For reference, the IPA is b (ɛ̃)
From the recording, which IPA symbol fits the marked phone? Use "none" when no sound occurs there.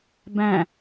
æ̃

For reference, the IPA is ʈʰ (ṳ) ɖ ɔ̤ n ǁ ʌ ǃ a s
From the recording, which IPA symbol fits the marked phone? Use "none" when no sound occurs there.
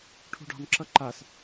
ṳ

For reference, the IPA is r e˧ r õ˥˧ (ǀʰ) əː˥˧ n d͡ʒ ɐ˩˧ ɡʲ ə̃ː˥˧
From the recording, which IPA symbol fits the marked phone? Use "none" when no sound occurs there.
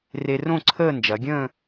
ǀʰ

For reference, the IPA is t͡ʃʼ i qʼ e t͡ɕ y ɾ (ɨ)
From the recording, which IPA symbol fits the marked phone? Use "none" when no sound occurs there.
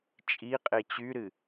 ɨ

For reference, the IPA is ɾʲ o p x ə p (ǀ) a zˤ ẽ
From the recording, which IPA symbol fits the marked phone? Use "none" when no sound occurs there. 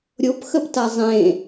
t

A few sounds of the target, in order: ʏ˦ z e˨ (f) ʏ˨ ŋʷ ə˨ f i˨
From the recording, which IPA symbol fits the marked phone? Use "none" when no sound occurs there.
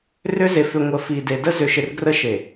f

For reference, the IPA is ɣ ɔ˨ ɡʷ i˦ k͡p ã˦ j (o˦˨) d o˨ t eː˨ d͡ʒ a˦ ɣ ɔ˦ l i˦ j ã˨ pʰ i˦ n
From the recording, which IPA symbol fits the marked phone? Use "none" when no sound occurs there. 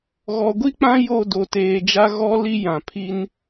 o˦˨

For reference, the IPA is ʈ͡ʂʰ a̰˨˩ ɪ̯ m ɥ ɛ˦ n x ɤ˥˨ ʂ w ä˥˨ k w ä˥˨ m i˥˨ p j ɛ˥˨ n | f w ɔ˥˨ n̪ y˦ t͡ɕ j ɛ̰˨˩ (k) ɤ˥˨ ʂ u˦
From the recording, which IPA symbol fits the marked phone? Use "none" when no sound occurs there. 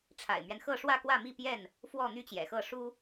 x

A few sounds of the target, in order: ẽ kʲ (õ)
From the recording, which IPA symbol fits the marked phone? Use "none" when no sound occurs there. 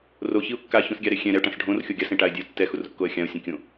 õ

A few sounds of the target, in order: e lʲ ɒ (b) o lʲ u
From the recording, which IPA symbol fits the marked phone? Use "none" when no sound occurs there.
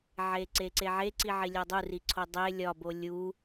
b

